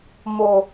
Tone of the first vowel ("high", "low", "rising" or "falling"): low